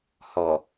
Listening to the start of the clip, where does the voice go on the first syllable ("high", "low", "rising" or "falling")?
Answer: low